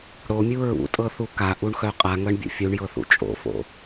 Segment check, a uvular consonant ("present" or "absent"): present